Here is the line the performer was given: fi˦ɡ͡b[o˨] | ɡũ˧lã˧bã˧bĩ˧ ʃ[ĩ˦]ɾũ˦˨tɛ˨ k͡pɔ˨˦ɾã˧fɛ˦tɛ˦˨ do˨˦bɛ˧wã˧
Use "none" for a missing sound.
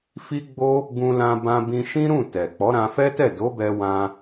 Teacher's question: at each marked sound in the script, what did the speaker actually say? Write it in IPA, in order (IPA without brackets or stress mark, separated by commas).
o˦, ĩ˦